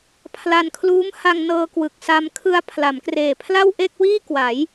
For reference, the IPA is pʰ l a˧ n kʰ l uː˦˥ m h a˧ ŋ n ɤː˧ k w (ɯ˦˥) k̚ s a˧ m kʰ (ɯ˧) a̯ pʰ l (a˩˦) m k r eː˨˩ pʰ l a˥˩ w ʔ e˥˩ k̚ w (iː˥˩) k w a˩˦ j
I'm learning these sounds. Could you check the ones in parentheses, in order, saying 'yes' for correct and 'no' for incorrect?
no, yes, yes, yes

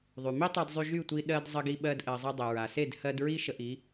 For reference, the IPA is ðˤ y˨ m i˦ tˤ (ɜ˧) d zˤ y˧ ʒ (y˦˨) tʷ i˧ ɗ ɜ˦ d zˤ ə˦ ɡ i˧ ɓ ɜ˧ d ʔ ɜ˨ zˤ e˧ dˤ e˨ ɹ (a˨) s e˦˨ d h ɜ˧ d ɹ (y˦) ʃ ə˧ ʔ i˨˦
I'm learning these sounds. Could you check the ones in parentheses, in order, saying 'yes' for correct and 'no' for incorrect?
yes, yes, yes, no

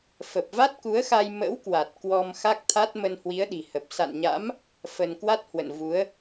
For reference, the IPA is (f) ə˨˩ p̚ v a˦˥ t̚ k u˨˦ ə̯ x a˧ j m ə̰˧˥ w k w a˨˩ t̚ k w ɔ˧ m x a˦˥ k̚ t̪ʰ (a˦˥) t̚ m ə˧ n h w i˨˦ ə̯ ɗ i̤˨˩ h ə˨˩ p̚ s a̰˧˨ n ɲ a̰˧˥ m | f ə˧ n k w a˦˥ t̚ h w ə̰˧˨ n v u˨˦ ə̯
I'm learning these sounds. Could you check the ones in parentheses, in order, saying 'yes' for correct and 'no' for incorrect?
yes, yes

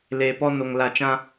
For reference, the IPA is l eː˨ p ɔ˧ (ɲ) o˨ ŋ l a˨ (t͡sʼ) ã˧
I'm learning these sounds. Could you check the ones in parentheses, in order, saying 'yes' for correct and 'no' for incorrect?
no, no

